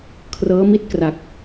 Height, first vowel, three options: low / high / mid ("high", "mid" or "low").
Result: mid